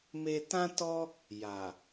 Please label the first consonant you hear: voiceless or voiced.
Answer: voiced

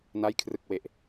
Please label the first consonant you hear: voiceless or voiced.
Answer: voiced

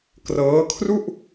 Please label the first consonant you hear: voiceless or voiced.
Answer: voiceless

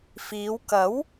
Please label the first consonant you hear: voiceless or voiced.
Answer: voiceless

